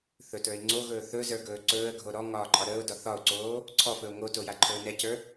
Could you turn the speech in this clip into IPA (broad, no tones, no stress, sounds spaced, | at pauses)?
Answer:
θ ɵ t ə˞ ɪ̯ ŋ͡ǀ o ɣ ɵː θ ɵ z ə˞ ɡ ɵː ǀ ɵː ə̯ ɡʱ o ɾ ɔ ŋ ɒː ǃʼ ɒ ɾ əː ʊ̯ d ɒ θ ɒ ʊ̯ ǀ oː | ǀʰ ɔ f ɵ ʊ̯ ŋ o t o j a ǃʰ ɵː n ɛ c ə˞